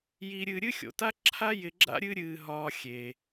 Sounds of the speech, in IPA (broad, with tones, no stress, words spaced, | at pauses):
ji˧ɾʲɨ˧ ɾʲɨ˥xʲo̰˩ta˥ǁʰa˥ jɪ˧ɡ͡ǁa̰˥ ɾʲɨ˥ ɾʲɨː˧ɦɒː˧ xʲe˩